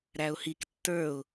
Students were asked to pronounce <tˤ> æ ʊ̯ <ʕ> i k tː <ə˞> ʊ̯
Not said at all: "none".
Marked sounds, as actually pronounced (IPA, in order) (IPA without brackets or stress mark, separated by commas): ɾ, h, ə˞